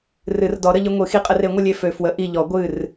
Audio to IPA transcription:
rɨ˨˩˦rdɔ˨˩˦ɾə˧ʎɨ˧ ŋʷɨ˨˩˦xi˧qʼə˧r e˨˩˦ŋʷə˧lʲe˧˩ fø˧fwə˧˥ ʔi˧˩ʎɔ˨˩˦ ɡʷɨ˧˩r

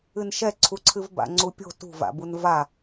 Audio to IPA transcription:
ɨnʃɛǀʰuǀʰɨv ba̰ŋ͡ǀupʲo̤ tṳva̰bun va

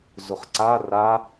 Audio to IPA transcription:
zʊχǀa ra

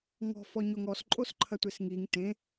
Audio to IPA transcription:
ŋɔ̤fɔ ɲoŋɔs ǃʼosǃʰɐtʷesŋiŋ tẽ

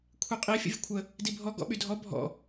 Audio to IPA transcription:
kʷʰiqʼi fʲə̰vʲəkʷʰə | dibʱɔ ɡɔ̰ɓydʱɔ bʱɔ̰

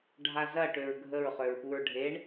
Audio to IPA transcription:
ɖʱazɐ ʈøɹɡʱəɹ χøɹpuɹɖʱeɳ

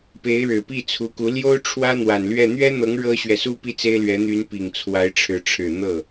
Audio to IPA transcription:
pe˧˥ɪ̯ɻɻ̩˨˩ pi˥˩t͡sʰu˧˥ku˧˥ ljo˥ʊ̯ ʈ͡ʂʰwä˥n̪wa˨˩nlɥɛ˥˩ n̪ɥɛ˥n̪ɤ˧˥ŋ ɻɤ˥ɕɥɛ˨su˥ pi˥t͡se˥ɪ̯lɥɛ˧˥ n̪y˧˥npi˨˩ŋ t͡sʰwa˧˥ɪ̯ʈ͡ʂʰɻ̩˧˥ ʈ͡ʂʰɻ̩˨˩ n̪ɤ˥˩

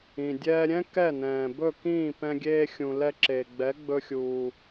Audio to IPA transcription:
ĩ˩dʲɛː˧ɾʲɛ̃˥ kɛ˥˩nɛ̃ː˩bɵ˥˩kĩː˥˩ pɛ̃˧ɡʲeː˧xʲũ˩ lɛ˧ǁe˩ ɡ͡bɛ˩˥ɡ͡bɵ˧xʲuː˩

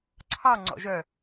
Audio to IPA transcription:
ǀʰɑ ŋ͡ǀɔ̰ʒœ

